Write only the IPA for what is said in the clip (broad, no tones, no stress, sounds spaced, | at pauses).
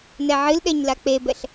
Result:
n ɛ ʕ ɨ l ɗ ɛ ɲ l a k͡p e b ɛ ɬ